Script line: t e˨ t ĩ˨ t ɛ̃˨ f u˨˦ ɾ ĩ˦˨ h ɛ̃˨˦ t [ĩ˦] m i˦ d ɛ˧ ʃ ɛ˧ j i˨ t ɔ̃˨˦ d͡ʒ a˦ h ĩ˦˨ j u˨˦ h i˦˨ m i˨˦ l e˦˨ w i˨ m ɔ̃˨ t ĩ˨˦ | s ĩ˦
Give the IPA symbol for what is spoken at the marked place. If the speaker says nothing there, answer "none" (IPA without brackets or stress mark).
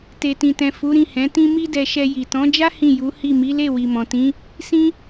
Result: ĩ˦